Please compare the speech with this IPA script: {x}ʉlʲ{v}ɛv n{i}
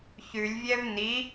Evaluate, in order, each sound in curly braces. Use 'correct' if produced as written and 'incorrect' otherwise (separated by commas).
incorrect, incorrect, correct